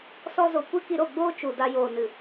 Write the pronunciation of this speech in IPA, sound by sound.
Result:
s ɔ˧ z o˨ kʷ ɨ˦ k i˧ ɾ o˦˨ ɡ͡b oː˦ t͡ʃ u˨ d a˧ j oː˨ n ɨ˨

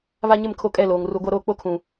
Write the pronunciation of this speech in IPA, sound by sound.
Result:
β a˦ ɲ ɪ˦˨ m kʰ o˦ kʼ ɛ˦˨ l oː˨ ŋ r u˨ ɡʷ a˦ ɾ oː˦ k͡p o˦ kʰ ũ˨

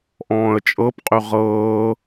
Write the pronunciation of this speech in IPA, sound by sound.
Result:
ʔ ɔ̃ː ə̯ t͡ʃʼ ɤ p qʼ y ʁ ɤː

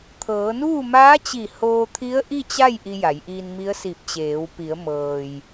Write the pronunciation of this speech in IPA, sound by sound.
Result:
t̪ʰ ɤː˩˧ n uː˥˨ m aː˧˥ t͡ɕ i˧˩ h oː˧ t̪ʰ i˧˥ ə̯ ʔ i˥˨ t͡ɕ a˥˨ j ʔ i˧ j a˩˧ j ʔ iː˧ n m i˧˥ ə̯ s i˧˩ p̚ t͡ɕ eː˩˧ w p i˩˧ ə̯ m ɤː˩ j

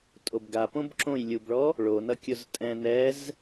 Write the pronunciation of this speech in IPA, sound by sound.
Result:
tʼ o b ɡ a p õ b ǁ õ j lʲ u b ɭ ɔ | ɭ o n ʌ kʲ ʊ z tʼ ɛ̃ n ɛ z

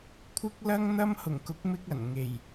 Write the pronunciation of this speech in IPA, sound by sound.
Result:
kʷʰ ɪ˥ k̚ l ɐ˥ ŋ n̪ ɐ˥ m h ʊ˨˩ ŋ k ʊ˨˥ k̚ m ɪ˥ k̚ ɐ˨˩ n ŋ e˨˩ j

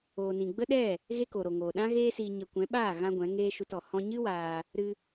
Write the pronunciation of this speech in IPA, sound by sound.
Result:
oː˨ n ĩ˨ ɡ͡b ə˦ ɗ ɛ˦˨ | ɣ e˦ k o˨ ɾ o˨ ŋ oː˨ ɗ ã˦ ɣ eː˦ s iː˧ ɲ ə˧ kʷ ɛ̃˨˦ ɓ aː˦˨ ɣ ã˧ ɡʷ ɛ̃˨˦ ŋ eː˦ ʃ u˧ t ɔ˨ h ɔ̃˧ ɲ ɨ˦ w aː˧ | ɾ ɨ˧

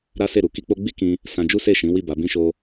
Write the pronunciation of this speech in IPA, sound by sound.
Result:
ɾ a˦ s e˦˨ ɾ u˨ k i˧ k͡p o˧ ɡ͡b i˦ k ĩ˧ | s ã˧ d͡ʒ u˦ s e˦˨ ʃ ĩ˨˦ w i˦˨ b a˨˦ b ĩ˦ ʃ o˦

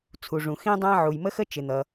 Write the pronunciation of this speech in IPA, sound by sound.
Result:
t͡sʰ u˩ ʐ ũ˩ x ĩ˥ dˤ æ̃˥ ʕ u˩ j m ə˥ x ə˥ t͡ʃ ɪ˩ n̪ ʌ˩

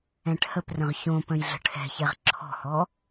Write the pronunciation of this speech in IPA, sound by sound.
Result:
ɛ̃ ʈ h ə p r ə̃ ʁ ç õ p ə̃ j ɮ ə̤ ʈʰ ɛ̤ ç ɛ ʁ ǁʰ ɔ̤ h ɔ

